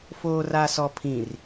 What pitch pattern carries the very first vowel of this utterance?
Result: low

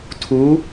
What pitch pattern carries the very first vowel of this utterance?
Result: rising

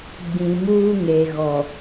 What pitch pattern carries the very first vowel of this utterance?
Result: low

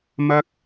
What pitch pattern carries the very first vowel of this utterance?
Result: high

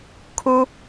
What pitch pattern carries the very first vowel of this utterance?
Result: high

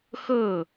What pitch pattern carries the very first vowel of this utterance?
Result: falling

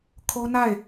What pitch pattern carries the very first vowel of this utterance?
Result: high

